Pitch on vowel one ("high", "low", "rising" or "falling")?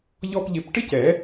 high